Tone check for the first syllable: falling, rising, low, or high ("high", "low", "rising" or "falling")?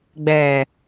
low